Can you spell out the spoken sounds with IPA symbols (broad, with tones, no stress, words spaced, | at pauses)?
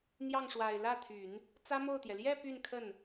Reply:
n̪jɑ˥˩ŋʂwa˨˩ɪ̯ lä˥˩t̪ʰy˨˩˦n | t͡sä˥mo˥˩ʊ̯t̪jɛ˩ ljɛ˥˧ py˥˧nkʰə˥˩n